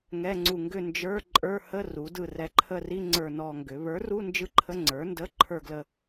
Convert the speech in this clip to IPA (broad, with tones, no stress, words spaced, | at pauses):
ŋɛ˧˥˧ŋ͡ǀu˦˨ ŋɡʏ˦˨nd͡ʒə˞˧˥˧ ǃʼə˞˧˥˧hə˧˥˧ ru˩˥dɯ˦˨rɛ˦˨ ǃʰə˦˨ri˧˥˧ ŋ͡ǀə˞˦˨nɔ˦˨ŋɡʏ˩˥ βə˞˩˥ru˧˥˧nd͡ʒɯ˧˥˧ ǃʰə˧˥˧ŋ͡ǀə˞˩˥ndə˧˥˧ ǃʰə˞˦˨ɡlə˦˨